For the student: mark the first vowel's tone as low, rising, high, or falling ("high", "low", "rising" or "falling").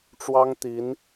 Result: high